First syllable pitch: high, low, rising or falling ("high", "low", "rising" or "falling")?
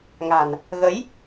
low